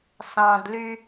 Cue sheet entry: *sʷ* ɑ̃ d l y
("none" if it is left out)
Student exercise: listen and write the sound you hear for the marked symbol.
s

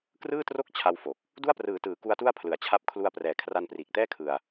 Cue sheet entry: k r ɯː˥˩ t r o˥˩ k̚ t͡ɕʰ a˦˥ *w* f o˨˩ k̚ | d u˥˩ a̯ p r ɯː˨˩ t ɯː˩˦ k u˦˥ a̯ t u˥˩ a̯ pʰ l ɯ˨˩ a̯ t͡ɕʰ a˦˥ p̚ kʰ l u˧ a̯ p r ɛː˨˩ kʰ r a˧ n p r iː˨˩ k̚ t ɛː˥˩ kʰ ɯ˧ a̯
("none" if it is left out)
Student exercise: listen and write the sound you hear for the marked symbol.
w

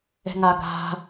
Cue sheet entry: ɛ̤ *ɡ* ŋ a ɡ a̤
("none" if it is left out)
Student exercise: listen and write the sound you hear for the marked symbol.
none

